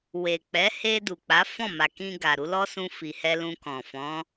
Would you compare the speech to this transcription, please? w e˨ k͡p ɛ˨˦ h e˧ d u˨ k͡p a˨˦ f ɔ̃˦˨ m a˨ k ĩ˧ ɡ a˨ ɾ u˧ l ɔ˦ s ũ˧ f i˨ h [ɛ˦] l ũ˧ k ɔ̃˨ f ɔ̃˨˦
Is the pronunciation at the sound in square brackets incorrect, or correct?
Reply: incorrect